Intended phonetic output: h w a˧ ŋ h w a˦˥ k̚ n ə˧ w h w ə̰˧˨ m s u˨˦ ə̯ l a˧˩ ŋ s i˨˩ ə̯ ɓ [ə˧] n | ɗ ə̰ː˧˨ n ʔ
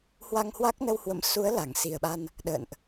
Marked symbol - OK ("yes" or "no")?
no